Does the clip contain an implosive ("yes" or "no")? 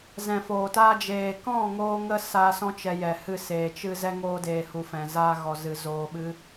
yes